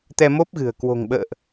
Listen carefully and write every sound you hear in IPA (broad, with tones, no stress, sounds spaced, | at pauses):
t̪ ɛ˧ m o˦˥ p̚ ɣ ɨ̤˨˩ ə̯ k w o̤˨˩ ŋ ɓ ə̰ː˧˨ ʔ